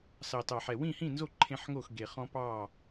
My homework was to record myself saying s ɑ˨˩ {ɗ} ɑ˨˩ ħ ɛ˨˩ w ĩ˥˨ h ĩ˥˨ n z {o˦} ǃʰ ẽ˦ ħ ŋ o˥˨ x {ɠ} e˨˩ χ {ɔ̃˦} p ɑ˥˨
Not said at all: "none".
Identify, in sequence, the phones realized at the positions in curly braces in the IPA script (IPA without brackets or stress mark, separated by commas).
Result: t, o˥˨, ɡ, ɔ̃˦